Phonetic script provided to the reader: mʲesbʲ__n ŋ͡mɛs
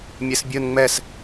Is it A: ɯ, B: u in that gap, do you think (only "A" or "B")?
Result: A